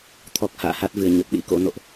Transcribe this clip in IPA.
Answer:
t̪ʰ ɔ˨˩ k̚ h a̰ː˧˨ h a˦˥ t̚ v ɨ˧˩ ə̯ ɲ ə˨˩ p̚ ɗ ḭ˧˥ k o̰˧˥ n o̰˧˨ ʔ

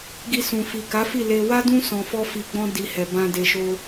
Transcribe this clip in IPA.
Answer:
ɡ i˧ s ũ˨ f i˨ k a˨˦ f i˦˨ l e˧ w a˦ d ũ˦ s ɔ̃˧ f ɔ˦ f i˧ ɡ͡b ɔ̃˦ d i˧ h ɛ˨ b ã˧ d e˧ ʃ o˦

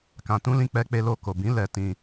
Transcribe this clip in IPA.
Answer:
k ã˧ t ũ˦ l ĩ˦ k͡p ɛ˦ k͡p e˦ l o˦˨ k o˨ b ĩ˨˦ l ɛ˧ t ĩ˧

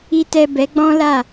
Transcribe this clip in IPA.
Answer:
i˨ t ɛ˨ b ɛ˨˦ ɡ͡b ɔ̃˦ l a˦˨

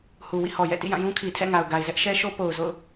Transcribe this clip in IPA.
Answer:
h u˨ w ḭ˦˨ h ɔ˨ j ɛ̰˦˨ t ḭ˦˨ j ã˦˨ j ũ˦ kʰ i˨ tʰ ɛ̰˦˨ ŋ a˨ ʊ̯ ɡ a˨ ɪ̯ z ɛ˦ ʔ ʃ ɛ˦ ʃ o˦ p o˨ ʊ̯ z o̰˦˨ ʊ̯

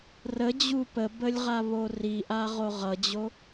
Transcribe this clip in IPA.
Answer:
r ə d͡ʑ u p ə b ə lʲ ʁ a β o r i ʔ a ʁ o ʁ ʌ d͡ʑ o

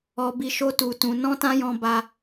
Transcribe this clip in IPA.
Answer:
ɔ˧ b i˧ ʃ o˦ t u˧ t ũ˧ n ɔ̃˦ t ã˦ j ɔ̃˧ b a˦

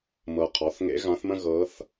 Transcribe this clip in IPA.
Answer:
m ɤ˨ qʰ ɔ˩˥ θ ŋ ḛ˧˥ ɣ ã˧˥ θ m ə̃˥ ɣ ɤ˧˥ θ

